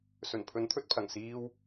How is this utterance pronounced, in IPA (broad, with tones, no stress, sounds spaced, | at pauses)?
s ɵ˨˩ n pʰ ɵ˨˥ n t̪ʰ ɵ˧ t̚ pʰ ɐ˨˩ ŋ s iː˥ w